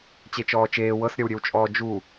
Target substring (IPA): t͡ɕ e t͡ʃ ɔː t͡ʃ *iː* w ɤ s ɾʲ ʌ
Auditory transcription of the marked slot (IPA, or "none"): eː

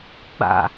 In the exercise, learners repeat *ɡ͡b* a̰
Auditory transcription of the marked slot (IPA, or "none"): ɡ͡b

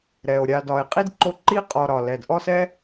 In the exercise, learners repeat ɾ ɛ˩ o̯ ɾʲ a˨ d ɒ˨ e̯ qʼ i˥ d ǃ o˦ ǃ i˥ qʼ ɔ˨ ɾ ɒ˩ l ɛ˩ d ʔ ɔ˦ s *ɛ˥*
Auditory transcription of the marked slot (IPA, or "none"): ɛ˥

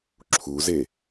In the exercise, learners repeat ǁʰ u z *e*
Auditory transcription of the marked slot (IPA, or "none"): e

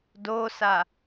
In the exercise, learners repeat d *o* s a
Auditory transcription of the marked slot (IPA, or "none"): o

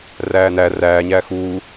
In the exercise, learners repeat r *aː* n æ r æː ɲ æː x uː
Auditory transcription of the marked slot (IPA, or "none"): æː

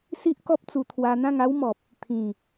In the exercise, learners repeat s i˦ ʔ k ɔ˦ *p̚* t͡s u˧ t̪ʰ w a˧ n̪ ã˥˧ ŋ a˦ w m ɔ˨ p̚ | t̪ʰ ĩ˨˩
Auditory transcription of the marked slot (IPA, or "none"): p̚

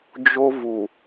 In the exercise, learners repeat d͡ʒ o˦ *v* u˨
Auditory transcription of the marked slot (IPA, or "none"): v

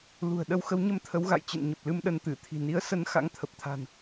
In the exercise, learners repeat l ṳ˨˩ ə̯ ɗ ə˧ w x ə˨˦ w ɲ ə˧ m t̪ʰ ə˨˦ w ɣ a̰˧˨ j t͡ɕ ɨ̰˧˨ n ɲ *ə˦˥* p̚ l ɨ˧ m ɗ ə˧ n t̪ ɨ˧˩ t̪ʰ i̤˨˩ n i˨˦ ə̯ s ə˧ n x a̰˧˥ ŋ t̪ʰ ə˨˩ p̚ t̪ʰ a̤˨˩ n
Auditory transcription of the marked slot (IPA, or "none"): ə˨˩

